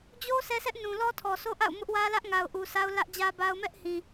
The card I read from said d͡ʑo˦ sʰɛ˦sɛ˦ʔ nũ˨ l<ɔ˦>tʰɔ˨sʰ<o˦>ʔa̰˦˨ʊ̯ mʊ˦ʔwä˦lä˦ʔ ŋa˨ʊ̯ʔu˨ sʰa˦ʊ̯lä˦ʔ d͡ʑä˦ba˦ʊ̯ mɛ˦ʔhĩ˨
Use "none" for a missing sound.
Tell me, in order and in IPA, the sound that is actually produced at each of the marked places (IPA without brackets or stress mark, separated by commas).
ɔ˦, o˦